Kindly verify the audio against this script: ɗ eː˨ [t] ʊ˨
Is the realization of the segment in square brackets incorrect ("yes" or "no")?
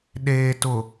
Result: no